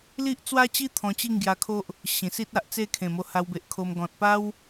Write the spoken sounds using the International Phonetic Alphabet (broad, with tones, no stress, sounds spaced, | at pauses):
l i˦ ʔ t͡s w a˦ t͡ɕ i˦ t̪ʰ ɔ̃˧ t͡ɕ i˥˧ ŋ ɡ j a˧ kʰ o˦ ʔ | ɕ ĩ˨˩ s i˦ t̚ a˨ ʔ t͡s e˥˧ kʰ ẽ˨˩ m o˧ h a˧ w b e˨ ʔ kʰ o˧ m ɡ ɔ̃˨ t̚ p a˦ w